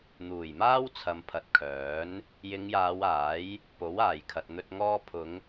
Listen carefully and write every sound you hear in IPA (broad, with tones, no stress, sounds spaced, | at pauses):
n̪ uː˨˩ j m aː˥ w t͡sʰ ɐ˨ m pʰ ɐ˨˥ t̚ kʰ œː˨˥ n | j ɪ˨˧ ŋ j aː˨˧ w aː˨˥ j | p o˨˥ w aː˨˩ j kʰ ɐ˨ t̚ n̪ ɵ˧ t̚ ŋ ɔː˧ pʰ ʊ˨˧ ŋ